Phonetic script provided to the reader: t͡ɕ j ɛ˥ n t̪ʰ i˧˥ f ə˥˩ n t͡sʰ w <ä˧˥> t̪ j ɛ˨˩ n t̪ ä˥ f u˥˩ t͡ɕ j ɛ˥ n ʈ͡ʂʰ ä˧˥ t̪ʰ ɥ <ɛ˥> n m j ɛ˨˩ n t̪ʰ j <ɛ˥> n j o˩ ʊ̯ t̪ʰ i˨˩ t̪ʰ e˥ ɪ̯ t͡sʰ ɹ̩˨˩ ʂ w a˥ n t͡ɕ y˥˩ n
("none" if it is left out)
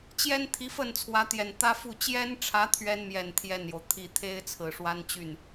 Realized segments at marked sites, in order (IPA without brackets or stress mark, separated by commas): ä˧˥, ɛ˥, ɛ˥˩